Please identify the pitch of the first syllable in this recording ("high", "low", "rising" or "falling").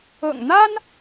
low